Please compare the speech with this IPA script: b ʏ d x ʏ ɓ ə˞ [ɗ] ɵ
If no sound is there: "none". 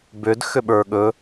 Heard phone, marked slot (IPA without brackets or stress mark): ɠ